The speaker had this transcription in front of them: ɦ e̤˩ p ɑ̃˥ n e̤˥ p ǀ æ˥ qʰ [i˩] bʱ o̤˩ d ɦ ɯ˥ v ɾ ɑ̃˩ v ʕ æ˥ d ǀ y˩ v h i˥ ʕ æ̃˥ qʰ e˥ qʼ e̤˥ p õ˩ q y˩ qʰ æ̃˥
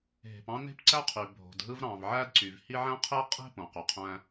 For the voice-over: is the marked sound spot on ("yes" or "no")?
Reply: no